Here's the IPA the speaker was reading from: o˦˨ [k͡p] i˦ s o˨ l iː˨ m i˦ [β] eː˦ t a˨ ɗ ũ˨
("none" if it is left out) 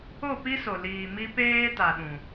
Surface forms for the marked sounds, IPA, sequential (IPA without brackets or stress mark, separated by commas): p, p